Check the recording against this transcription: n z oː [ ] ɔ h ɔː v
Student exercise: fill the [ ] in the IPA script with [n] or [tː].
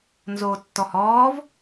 tː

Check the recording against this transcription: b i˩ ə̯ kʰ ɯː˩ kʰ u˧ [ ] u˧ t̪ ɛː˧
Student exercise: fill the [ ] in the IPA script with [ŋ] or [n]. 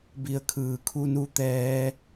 n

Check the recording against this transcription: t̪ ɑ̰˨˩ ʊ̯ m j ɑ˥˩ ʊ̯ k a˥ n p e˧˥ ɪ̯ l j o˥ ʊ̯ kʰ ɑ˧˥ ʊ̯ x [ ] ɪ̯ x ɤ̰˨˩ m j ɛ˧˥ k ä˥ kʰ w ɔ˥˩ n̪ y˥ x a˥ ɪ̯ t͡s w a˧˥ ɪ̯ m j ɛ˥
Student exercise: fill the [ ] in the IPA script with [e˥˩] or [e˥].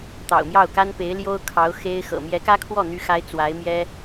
e˥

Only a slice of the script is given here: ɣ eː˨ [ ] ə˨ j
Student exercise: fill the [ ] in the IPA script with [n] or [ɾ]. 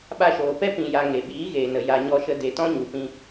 n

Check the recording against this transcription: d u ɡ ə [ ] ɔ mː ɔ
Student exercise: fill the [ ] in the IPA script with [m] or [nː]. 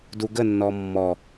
nː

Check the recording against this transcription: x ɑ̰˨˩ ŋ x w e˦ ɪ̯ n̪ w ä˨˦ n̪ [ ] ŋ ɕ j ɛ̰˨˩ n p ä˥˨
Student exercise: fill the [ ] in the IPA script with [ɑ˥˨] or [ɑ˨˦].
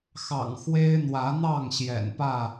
ɑ˥˨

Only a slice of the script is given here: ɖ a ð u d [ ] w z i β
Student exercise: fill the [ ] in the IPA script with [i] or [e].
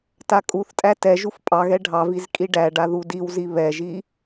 i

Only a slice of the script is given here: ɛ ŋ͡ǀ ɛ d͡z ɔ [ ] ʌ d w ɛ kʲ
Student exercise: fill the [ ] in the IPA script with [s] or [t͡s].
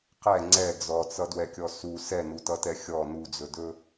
t͡s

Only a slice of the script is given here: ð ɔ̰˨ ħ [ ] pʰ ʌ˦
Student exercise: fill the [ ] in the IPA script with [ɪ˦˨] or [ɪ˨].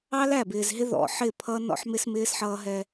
ɪ˦˨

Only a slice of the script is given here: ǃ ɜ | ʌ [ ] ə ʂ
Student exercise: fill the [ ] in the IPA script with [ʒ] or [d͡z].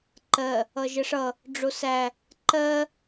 ʒ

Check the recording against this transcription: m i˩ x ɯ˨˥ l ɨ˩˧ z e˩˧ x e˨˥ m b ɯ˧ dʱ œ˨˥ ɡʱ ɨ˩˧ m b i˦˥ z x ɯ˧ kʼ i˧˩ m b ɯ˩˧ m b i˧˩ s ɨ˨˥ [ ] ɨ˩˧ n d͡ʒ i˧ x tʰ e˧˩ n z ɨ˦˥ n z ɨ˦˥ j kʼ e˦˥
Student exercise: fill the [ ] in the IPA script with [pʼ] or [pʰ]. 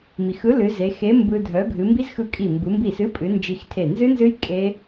pʼ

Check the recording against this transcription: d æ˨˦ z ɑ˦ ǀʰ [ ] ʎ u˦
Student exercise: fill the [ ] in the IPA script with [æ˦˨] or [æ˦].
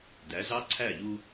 æ˦˨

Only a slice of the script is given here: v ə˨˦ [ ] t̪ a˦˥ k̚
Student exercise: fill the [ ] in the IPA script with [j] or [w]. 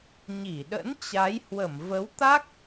w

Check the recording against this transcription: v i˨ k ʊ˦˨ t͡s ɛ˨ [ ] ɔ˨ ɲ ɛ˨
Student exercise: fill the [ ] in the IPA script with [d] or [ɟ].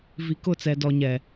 d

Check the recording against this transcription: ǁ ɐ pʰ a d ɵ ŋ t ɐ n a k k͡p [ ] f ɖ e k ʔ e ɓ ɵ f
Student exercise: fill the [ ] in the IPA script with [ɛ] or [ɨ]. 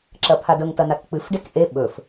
ɨ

